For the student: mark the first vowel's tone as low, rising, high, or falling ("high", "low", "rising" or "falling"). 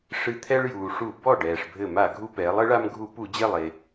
falling